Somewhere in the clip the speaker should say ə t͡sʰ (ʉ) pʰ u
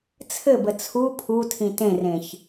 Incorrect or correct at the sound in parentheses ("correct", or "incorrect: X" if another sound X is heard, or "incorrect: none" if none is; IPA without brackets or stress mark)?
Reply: incorrect: u